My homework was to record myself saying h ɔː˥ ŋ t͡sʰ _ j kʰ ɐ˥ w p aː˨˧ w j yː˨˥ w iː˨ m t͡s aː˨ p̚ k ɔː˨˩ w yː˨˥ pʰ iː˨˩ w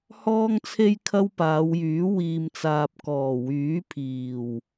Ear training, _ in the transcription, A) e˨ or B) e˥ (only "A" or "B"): B